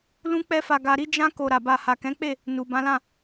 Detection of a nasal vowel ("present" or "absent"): present